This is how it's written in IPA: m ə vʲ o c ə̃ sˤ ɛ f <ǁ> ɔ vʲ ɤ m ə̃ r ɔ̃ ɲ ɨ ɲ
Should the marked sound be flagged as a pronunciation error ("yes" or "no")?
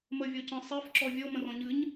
no